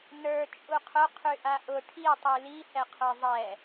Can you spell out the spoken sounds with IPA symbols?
nə˞ t͡ʃʼuqʰʊ qʰyʔaʔʊ ʈʰi tˤyli hɛqʰə˞zˤɛ

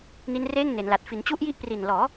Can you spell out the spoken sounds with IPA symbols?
ni˦˥nreː˥˩ŋne˩˦nla˨˩t̚ fi˩˦nt͡ɕu˦˥ʔji˦˥ʔ pri˨˩nlɔː˩˦

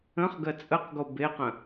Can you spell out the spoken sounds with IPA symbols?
ə̃χɡɜ t͡sʼəqɡo beqə̃

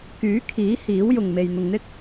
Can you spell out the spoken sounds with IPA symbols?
kyː˨˥kʰiː˨˥ hiː˨˥wjʊ˨ŋme˨j n̪ʊ˨ŋn̪ɪ˥k̚

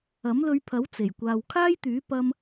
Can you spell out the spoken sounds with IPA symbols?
ɐ˨˥mlɵ˧ɥpʰɐ˨˥w t͡se˨˩jkʷaː˧w kʰaː˥jt̪yː˨˥ pɐ˧m

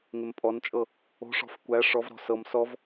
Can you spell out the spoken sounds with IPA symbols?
ŋɪmpʼɔnt͡ʃʼɤ | o̤ʂɔ̤f kʷæ ʂɔvɾɔ̤ sɤm sɔv

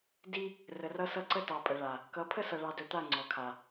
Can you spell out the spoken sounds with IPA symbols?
di˦ | rə˨rʌ˦sʌ˦ ǀə˦tɑ˨pʼə˨ɭa˨ | kʌ˨˦pʰə˦sʌ˨ ɭɑ˨dɵ˨t̪a˦˨ ŋ͡ǀɔ˨kʰa˨

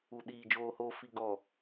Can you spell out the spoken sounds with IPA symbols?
u˨ɗiː˨ d͡ʒoː˨hoː˨ fi˨ɡɔ˨

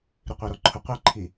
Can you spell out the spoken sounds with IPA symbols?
ɾiqʷaɾɔǃʰʊ qʷi ǃʰi

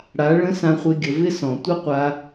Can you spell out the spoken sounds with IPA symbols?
ɽa˨˦ɭə̃˦ sã˧χʷɪ˧ɡʲə˨ vɪ˦sɔ̃˨ tʷə˦qʷa˧

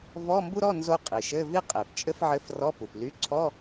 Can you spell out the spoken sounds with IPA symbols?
vɔ˧˥˧ mbu˥ɾɔ˧˥˧ nzo˥qʼi˩ ʃɘ˧˥˧vi˥ qʼe˩p t͡ʃʼɘ˥fʕɘ˧˥˧f rɔ˧˥˧pu˩ply˧˥˧ ǀʰɔ˧˥˧

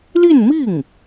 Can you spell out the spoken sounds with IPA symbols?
li˥˧nmi˥˩ŋ

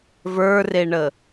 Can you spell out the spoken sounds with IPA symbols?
və˞reɳə

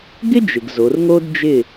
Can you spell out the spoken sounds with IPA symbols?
ɡɪ˥d͡ʒɪ˩ɡ zo˩˧rŋo˥dd͡ʒɪ˥˨

